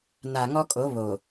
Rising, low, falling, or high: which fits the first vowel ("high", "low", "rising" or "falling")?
low